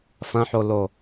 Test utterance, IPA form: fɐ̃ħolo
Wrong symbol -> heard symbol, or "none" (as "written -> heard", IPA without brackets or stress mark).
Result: none